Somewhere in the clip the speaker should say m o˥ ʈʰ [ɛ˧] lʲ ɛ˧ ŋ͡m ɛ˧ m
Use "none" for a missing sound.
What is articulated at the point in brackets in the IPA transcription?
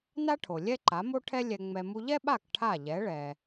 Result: ɛ˥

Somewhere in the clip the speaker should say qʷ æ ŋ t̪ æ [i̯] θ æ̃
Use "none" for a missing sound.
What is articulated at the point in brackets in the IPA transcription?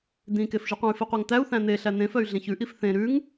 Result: u̯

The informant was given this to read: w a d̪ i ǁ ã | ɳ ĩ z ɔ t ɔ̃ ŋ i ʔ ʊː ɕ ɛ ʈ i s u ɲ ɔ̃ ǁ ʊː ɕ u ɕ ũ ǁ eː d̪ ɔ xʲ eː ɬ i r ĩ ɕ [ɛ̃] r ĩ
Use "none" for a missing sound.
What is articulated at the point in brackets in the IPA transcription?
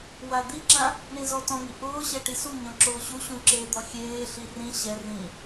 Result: ɛ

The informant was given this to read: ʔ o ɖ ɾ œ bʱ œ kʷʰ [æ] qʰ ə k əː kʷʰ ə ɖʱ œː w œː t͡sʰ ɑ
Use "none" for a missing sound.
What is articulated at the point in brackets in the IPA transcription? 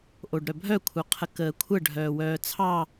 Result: œ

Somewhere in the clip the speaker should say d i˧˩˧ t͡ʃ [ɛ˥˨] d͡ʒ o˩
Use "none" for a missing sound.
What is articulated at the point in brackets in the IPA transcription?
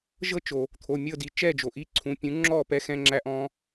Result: ɛ˥˨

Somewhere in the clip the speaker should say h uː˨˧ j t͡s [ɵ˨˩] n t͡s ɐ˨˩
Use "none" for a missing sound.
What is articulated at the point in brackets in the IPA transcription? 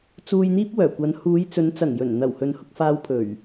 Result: ɵ˨˧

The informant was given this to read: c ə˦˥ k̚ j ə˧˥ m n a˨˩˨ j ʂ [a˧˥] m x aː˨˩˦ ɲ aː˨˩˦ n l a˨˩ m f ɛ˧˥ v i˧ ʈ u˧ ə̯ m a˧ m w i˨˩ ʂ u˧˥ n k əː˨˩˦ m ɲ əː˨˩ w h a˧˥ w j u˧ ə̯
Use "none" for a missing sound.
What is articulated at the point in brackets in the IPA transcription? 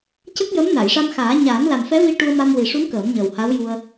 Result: a˧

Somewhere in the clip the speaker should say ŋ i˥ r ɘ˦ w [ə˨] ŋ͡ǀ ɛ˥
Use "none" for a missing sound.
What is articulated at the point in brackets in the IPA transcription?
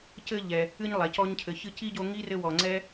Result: ɔ˨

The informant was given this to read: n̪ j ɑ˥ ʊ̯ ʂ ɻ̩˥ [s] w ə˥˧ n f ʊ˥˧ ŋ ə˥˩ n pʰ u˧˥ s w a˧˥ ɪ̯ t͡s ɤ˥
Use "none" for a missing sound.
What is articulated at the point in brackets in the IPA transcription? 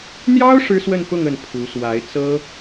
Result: s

